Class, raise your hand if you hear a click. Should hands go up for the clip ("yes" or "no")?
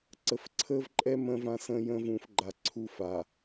yes